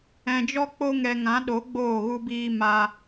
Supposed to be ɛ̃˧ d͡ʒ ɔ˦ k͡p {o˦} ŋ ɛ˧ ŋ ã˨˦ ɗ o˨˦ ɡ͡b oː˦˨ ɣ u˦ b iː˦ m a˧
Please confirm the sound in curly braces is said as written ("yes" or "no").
yes